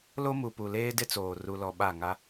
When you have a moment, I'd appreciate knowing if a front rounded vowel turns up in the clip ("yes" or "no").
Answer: no